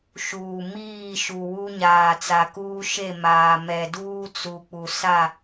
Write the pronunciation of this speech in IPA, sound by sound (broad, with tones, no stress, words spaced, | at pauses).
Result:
ʃuː˨ miː˦˨ʃu˨ wu˦ ɲaː˨t͡sa˨kuː˦ ʃe˦˨maː˨mɛ˨ duː˦t͡su˨k͡pu˨ sa˦˨